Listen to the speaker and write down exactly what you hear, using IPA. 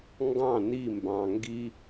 ŋ ɡ ɑ̃ n i m b ɑ̃ ŋ ɡ i

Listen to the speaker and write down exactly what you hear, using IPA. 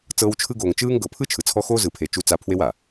t͡s ɤː˦ w t͡ʃʰ ɯ˦ ɡ oː˨ ŋ t͡ʃ ɯː˦ ŋ ɡ ɤ˨ pʰ ɯ˦ t͡ʃʰ ɯ˨ t͡sʰ ɔ˦ x oː˦ z ɯ˨ pʰ e˨ t͡ʃ u˦ t͡s a˦ pʰ w e˦ w a˨

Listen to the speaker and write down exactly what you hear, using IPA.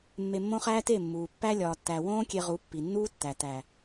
mː e˧ mː õ˦ χ æː˦ t e˦˨ mː uː˨ pː æ˧ lʲ ɒː˨ tː æ˨ w õː˦ kʲ e˧ ʁ u˨˦ pː i˨ nː uː˦ tː æ˨ t æ˨

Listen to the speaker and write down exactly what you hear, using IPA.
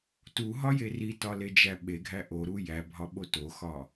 t u ɦ ɒ j e r i t ɒ l e d͡ʒ æ ɓ e ɡʱ æ ʔ o ɾ u j æ bʱ ɒ ɓ o t o x ɒ

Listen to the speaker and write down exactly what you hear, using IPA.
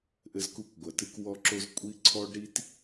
ʔ ɘ˧ z k u˧ kʷ ɡʷ ɐ˨ t ɨ˧ k w ɔ˧ ǁ o˧ z kʷʼ i˧ ǀʰ ɔ˦ ɖ ɾ i˦ t

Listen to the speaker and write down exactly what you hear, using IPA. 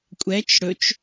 kʷʼ ɛ t͡ʃ ɽ ɵ t͡ʃ

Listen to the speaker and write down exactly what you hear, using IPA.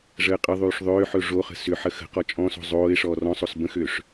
ʐ əː qʼ ə ðˤ yː ʂ ðˤ ʏː ħ ɵ ʐ o χ ə̤ s ʏ ħ ə x ə̤ q ɔ t͡ʃʼ ɔ̃ s o̤ zˤ oː ɪ̯ ʂ ɔː r ɔ̃ sˤ o s b ə̃ x ʏː ʂ

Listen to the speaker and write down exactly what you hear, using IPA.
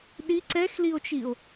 ɗ i ǀ ɛ x l i o̯ t͡ʃ i o̯

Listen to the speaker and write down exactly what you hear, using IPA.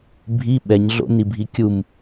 bʱ i ɓ ɛ ɲ ɮ o̰ n i bʱ i kʲ u m

